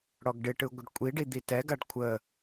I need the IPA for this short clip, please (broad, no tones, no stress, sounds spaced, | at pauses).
ɽ ɔ ɡ ɖ ɪ ʈ ɯ ɡʷ ɪ ɖ kʷʼ i ɖ i d̪ i t ɛ ɡ a ɖ kʷʰ ə